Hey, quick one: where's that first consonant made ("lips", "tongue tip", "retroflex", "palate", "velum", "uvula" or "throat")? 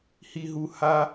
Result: throat